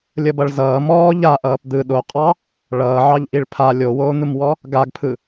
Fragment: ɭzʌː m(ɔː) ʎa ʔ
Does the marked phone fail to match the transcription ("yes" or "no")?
no